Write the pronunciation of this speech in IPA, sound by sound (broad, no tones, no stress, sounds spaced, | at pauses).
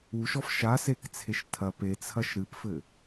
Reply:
u ʃ ɔ f ʃ a s e k t͡sʰ e ʃ tʰ ɐ p e t͡sʰ ɐ ʃ ɾ ɨ p f ɘ